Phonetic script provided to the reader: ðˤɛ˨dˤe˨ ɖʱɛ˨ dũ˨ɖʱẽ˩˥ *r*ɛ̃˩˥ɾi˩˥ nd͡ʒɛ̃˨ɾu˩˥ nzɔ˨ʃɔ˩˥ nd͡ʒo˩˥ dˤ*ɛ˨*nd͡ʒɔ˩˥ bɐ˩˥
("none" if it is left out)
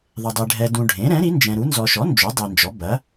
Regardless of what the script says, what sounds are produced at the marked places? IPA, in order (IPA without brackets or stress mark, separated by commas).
ɾ, e˨